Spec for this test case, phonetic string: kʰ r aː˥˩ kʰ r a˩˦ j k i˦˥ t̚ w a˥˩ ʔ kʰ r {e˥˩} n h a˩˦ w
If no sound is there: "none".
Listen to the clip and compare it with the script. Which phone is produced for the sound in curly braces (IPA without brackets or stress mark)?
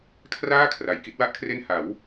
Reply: e˥˩